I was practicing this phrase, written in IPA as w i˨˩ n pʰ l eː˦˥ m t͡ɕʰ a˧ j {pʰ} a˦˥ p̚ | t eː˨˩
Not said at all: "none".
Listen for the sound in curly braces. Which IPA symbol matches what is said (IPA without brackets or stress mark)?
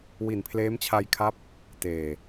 kʰ